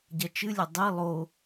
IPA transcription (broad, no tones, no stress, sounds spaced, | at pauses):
ɟ ɐ t͡ʃ ɨ lʲ ɐ dˤ i lˠ o